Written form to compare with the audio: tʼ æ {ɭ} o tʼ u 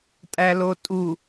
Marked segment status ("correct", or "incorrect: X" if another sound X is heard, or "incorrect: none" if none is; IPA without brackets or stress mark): incorrect: l